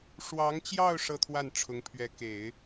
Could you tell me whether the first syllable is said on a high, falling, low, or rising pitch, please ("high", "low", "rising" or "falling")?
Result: rising